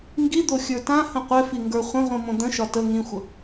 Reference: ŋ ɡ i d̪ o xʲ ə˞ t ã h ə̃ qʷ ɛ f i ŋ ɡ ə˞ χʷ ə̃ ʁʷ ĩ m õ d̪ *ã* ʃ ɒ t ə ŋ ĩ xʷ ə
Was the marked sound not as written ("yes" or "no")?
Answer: yes